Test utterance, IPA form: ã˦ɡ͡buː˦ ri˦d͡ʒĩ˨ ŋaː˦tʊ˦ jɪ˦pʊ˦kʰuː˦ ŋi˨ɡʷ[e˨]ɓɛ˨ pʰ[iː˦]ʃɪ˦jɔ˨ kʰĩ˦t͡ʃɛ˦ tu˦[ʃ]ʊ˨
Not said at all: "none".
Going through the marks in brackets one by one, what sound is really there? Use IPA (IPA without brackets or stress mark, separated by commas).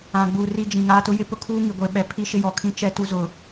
e˨, i˦, z